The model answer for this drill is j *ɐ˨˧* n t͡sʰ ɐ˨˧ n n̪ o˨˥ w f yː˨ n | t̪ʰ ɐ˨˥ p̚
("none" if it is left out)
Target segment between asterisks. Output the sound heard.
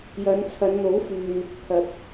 ɐ˨˧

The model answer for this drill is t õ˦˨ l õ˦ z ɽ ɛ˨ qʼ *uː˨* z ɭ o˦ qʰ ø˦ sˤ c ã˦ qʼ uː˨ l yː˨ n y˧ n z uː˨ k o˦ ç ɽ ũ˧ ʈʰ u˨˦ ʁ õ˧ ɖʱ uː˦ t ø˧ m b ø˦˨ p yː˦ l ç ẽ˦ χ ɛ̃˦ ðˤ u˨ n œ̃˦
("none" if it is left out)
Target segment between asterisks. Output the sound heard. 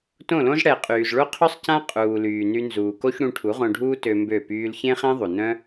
yː˨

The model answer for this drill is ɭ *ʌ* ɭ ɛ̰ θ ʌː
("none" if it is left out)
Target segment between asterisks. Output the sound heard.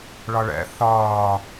ʌ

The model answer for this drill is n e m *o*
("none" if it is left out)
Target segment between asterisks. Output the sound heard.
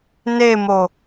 o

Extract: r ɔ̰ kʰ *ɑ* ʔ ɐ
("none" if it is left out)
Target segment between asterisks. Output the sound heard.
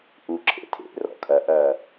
ɐ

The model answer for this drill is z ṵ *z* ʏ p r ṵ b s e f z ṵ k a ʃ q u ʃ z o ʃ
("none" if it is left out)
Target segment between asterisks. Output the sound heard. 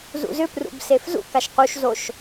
z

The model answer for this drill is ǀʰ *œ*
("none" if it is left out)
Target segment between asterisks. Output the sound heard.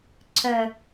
œ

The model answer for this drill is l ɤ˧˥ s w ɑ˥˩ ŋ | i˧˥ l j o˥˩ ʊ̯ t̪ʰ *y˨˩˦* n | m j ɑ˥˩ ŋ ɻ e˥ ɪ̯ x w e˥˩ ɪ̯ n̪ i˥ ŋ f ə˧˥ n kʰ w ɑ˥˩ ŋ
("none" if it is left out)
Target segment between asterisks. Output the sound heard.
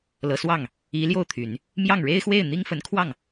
y˨˩˦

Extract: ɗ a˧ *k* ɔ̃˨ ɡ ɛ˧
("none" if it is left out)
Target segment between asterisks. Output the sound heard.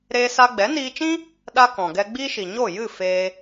k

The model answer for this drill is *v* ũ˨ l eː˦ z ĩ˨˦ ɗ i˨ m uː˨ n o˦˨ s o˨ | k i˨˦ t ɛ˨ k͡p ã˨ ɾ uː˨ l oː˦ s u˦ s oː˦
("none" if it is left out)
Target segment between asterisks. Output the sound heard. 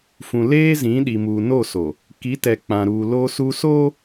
f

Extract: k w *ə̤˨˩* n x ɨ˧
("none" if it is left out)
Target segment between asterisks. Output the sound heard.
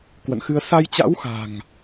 ə̰˧˨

